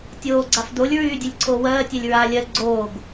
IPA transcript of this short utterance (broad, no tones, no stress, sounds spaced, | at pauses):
tʲ oː ɡ͡ǀ a f d o lʲ ɹ yː dʲ ɛ lʲ ǀʰ oː w ɜː tʲ ɛ lʲ ɹ aː lʲ ɜ ɡ͡ǀ oː ɡ